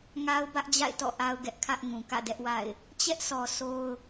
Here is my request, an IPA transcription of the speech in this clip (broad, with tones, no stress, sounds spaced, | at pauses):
ŋ a˦ ʊ̯ b ä˦ ʔ d͡ʑ a̰˦˨ ɪ̯ t ɔ̰˦˨ ʔ a˦ ʊ̯ ɡ ɛ˦ ʔ kʰ ä˦ ʔ ŋ ũ˨ k ä̰˦˨ d ɛ˦ ʔ w a̰˦˨ ɪ̯ | t͡ɕ ɛ˦ ʔ s ɔ˨ sʰ o˦ ʊ̯